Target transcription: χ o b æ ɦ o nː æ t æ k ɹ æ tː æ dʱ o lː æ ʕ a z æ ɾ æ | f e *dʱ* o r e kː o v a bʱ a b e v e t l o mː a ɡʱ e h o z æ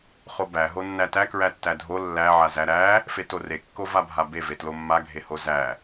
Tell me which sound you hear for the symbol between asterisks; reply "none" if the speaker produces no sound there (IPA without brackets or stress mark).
t